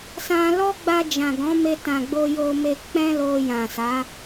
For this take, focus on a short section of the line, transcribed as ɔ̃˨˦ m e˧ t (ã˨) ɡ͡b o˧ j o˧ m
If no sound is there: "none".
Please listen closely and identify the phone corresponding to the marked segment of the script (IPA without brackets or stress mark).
ã˨